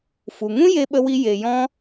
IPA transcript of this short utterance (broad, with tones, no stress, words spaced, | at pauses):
fu˨ŋũ˦ je˧ɓə˧wi˧ je˨jɔ̃˧